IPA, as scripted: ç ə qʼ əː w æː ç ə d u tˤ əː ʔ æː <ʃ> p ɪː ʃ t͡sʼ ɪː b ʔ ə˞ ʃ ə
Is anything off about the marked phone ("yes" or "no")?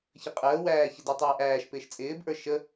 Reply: no